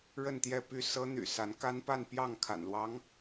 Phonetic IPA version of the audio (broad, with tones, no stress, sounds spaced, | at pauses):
ɻ ə˥˧ n t̪ j ɛ˥˧ p y˥˩ s ɤ˥ n̪ y̰˨˩ s a˧˥ n k a˥ n p a˥˧ n p j ɑ˥˩ ŋ kʰ a̰˨˩ n l w ɑ˧˥ ŋ